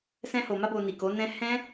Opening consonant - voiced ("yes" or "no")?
no